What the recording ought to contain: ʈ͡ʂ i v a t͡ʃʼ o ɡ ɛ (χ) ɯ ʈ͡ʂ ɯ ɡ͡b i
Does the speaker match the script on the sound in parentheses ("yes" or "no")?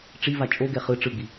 yes